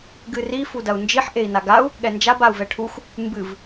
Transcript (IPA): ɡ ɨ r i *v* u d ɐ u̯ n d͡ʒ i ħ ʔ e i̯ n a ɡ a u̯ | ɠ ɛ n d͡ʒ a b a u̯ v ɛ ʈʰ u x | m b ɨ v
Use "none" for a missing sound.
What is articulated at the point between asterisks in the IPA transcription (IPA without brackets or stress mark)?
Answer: f